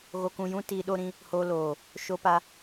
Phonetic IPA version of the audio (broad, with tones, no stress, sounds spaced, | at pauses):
ɣ o˧ k ũ˧ j ũ˦ t iː˧ ɗ o˦ ɾ ĩ˧ | h o˧ l oː˨ | ʃ o˦ p a˦